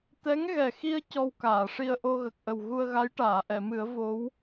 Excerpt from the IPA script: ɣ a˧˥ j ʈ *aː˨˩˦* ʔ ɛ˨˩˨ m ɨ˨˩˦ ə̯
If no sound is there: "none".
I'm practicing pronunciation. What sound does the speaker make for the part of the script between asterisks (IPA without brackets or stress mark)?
aː˨˩˨